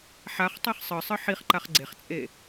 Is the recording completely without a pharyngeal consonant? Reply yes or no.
no